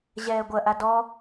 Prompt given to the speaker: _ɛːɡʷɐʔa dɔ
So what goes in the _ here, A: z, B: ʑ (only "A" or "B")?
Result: B